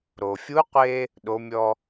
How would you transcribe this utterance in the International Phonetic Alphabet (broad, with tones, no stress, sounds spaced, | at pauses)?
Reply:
ɾ o˩ fʲ u˧˥ qʷ e˧ | ɗ o˩˧ mʲ ɔ˧